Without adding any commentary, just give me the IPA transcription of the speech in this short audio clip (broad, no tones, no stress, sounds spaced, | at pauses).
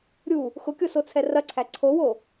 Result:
ɾʲ u | x ʊ kʲ o s o t͡sʰ ɛ r ɐ ǀʰ æ ǀʰ o w o